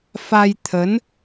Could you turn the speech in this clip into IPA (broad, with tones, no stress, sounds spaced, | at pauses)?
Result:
f a˧ j t̪ʰ ə˨˦ n